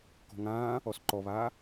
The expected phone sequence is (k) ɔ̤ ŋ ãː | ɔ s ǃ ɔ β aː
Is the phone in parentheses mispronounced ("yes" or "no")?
no